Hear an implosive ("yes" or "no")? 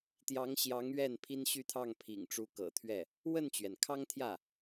no